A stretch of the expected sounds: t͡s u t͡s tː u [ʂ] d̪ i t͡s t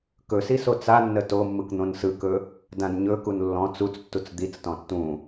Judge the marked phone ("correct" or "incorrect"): incorrect